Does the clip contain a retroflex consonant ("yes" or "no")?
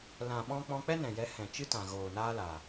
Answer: no